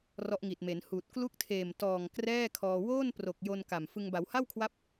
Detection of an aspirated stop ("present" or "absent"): present